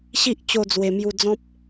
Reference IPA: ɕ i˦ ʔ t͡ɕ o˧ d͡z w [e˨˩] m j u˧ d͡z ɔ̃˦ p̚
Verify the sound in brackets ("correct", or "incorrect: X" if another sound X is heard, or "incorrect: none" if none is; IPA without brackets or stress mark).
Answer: correct